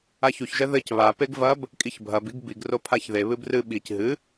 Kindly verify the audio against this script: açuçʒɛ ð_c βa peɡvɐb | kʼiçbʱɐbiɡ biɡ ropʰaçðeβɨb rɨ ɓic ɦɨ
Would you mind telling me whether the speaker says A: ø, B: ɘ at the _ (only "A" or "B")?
B